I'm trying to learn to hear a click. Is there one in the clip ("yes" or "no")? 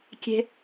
no